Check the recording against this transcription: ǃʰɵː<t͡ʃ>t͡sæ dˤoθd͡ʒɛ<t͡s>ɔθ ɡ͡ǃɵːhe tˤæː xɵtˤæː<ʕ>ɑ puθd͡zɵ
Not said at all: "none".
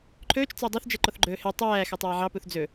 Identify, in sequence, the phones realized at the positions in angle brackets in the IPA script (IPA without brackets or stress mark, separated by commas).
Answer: t͡ʃ, ǃ, ʕ